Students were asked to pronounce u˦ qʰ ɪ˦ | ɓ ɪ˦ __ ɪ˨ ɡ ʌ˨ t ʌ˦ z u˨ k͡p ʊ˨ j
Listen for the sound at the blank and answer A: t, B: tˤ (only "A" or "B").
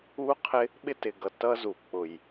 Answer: A